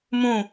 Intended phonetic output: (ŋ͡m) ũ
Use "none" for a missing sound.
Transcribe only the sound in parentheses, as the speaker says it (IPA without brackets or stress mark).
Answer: m